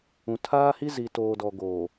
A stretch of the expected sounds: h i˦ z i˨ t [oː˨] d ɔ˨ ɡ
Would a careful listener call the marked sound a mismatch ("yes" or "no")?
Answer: no